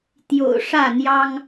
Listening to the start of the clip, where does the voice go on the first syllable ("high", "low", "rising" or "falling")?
low